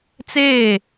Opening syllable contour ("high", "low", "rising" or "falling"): falling